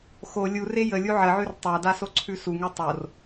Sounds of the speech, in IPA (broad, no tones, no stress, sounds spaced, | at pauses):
x o lʲ u r e j ə lʲ u ʕ ə ʕ ʉ r tˤ a d a s o ǀʰ ʉ s u ŋ u tˤ o r